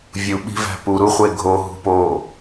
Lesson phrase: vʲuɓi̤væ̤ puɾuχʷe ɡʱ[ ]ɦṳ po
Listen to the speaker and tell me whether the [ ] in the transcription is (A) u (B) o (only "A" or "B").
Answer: B